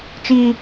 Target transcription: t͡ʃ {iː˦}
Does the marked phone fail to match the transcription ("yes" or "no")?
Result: no